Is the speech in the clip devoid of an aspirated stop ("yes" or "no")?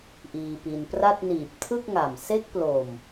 no